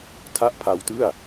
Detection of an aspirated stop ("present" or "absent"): present